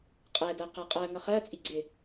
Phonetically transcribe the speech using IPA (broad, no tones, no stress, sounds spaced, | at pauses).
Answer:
qʼ ɛ d ɜ q æ qʼ ɜ ŋ ʌ χ ɜ t͡sʼ i ɡ͡ǀ ɪ